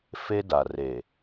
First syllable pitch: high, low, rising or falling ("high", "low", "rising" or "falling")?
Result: high